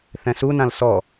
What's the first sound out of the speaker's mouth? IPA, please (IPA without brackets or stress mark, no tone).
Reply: θ